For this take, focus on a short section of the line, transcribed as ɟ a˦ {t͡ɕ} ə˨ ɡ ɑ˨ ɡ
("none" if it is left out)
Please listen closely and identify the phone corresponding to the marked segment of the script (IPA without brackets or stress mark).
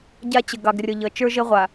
t͡ɕ